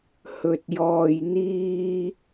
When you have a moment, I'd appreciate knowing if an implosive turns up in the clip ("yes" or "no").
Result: no